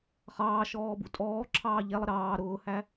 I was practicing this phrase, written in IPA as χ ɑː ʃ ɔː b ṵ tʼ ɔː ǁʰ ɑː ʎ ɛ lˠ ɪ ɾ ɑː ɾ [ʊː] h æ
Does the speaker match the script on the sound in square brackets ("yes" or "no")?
yes